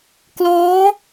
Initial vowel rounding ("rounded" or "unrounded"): rounded